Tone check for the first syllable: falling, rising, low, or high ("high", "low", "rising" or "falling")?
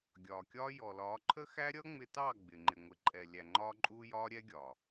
low